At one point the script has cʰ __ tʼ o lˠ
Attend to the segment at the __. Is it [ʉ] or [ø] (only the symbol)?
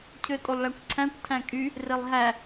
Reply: ø